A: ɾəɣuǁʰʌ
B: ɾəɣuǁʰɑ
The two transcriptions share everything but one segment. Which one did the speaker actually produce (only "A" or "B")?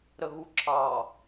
B